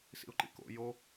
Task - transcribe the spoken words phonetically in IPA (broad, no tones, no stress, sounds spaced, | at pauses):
s ḭ ʊ̯ ǃ ḭ k o̰ j o